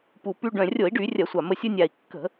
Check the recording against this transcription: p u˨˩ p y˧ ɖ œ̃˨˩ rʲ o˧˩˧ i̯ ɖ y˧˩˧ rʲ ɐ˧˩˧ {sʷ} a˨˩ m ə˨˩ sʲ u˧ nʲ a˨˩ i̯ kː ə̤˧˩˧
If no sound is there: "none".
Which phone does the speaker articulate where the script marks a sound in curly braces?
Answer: sʷ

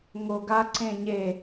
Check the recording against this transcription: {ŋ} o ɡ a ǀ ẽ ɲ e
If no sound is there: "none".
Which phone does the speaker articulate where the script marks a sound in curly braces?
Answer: ŋ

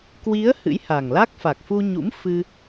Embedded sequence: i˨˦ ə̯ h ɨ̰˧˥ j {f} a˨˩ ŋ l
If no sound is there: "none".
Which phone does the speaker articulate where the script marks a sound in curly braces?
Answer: h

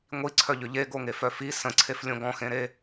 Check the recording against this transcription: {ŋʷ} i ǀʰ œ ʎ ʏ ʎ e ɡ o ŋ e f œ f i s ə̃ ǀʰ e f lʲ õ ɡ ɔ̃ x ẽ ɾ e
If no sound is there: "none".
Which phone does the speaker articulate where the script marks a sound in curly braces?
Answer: ŋʷ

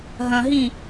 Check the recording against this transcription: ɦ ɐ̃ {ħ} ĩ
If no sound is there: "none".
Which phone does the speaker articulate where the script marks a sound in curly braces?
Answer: ɦ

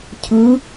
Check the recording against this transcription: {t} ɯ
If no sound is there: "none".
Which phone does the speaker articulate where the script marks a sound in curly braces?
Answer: cʰ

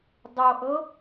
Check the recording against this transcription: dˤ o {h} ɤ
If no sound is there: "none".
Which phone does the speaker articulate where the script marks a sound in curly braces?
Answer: ʔ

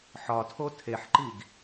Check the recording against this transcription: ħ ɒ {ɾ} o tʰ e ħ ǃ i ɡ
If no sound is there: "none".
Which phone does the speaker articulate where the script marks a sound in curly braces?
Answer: tʰ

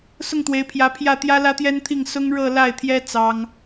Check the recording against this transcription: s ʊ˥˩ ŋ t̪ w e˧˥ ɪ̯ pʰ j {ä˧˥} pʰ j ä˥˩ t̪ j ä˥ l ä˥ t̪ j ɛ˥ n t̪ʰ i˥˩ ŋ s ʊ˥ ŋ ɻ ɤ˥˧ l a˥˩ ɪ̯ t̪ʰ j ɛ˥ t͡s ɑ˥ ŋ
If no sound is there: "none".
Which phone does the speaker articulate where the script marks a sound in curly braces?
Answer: ä˧˥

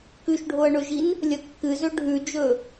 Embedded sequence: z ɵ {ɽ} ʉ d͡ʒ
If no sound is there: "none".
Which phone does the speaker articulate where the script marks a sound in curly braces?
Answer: ɖʱ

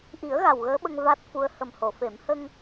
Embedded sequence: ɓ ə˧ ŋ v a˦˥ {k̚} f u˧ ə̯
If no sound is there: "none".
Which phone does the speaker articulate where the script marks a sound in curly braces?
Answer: t̚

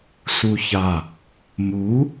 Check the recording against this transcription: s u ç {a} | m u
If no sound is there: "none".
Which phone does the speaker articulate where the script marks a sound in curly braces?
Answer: a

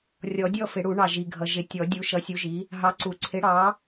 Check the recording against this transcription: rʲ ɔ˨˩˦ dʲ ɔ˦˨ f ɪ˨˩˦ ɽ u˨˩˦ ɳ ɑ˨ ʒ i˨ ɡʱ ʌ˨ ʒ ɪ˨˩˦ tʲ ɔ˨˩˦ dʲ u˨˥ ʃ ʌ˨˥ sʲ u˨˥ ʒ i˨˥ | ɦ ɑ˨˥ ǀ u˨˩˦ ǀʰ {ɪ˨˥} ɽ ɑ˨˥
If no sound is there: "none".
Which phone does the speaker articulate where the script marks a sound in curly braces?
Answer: ɪ˨˥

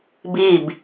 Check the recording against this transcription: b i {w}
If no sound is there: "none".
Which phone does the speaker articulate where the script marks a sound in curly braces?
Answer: b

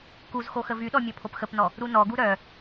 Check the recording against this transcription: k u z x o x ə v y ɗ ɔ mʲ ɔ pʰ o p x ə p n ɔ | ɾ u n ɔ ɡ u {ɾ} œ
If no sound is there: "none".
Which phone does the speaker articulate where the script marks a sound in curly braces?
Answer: ɾ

